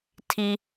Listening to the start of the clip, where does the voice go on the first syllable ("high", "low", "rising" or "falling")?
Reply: high